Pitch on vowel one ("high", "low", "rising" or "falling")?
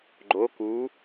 rising